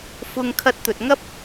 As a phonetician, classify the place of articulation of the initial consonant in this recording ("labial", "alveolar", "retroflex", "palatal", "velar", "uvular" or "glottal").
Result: labial